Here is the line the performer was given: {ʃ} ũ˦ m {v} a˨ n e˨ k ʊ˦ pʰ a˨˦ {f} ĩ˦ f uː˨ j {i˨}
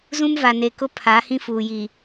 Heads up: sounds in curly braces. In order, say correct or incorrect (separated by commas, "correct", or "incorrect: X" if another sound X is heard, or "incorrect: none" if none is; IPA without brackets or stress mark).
incorrect: z, correct, incorrect: h, correct